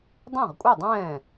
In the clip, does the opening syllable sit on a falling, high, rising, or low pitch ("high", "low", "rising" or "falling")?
falling